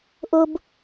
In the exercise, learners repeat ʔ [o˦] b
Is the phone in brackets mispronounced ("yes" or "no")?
no